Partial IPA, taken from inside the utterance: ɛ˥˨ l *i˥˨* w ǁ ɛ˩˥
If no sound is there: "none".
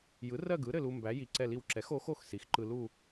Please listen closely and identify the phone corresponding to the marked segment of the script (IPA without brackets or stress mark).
i˥˨